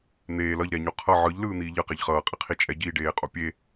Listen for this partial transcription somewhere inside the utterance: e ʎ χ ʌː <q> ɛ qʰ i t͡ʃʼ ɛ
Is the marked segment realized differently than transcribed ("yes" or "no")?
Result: yes